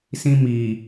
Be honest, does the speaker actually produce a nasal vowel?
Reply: yes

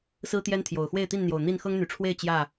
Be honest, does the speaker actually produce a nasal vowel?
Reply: no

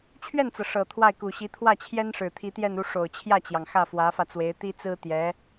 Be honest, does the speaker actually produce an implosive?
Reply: no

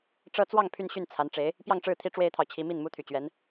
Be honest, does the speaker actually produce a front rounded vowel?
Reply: yes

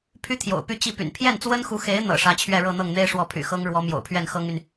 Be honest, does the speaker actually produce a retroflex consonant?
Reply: yes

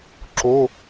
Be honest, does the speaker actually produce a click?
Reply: yes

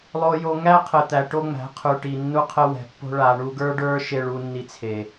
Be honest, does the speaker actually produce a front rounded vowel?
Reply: no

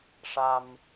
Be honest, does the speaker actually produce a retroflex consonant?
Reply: yes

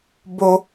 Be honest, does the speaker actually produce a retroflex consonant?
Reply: no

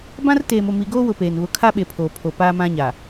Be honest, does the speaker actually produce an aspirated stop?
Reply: yes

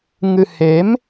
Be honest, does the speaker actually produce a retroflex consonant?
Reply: no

